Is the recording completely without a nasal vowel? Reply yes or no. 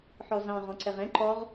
no